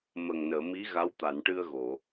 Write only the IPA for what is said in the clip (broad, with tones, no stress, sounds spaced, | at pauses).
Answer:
m ə˨˩ ŋ n əː˨˩˨ m i˧˥ ɣ a˧˥ w t̪ a˨˩˨ n ʈ ɨ˧ ə̯ ɣ o˨˩˨